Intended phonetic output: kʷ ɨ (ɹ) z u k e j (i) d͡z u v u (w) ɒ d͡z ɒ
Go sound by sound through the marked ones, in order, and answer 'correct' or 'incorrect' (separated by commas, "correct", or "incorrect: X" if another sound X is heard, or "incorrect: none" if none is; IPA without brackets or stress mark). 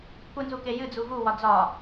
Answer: incorrect: n, incorrect: ɨ, correct